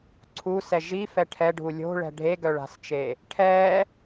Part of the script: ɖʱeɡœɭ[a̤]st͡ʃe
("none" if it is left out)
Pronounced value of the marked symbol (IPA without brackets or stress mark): a̤